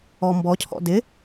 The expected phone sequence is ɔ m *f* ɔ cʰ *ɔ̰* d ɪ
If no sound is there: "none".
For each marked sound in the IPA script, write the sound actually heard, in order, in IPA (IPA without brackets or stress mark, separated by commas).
b, ɔ̰